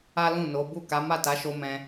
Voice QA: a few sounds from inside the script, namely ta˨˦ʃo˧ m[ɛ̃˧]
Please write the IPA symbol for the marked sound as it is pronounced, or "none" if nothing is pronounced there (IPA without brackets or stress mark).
ɛ̃˧